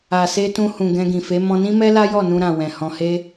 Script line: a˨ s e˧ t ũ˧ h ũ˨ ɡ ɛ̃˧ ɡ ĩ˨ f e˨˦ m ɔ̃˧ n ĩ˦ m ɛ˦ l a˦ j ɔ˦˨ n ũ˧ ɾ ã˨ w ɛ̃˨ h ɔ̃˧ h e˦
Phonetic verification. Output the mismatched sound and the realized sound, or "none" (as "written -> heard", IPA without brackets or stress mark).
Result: none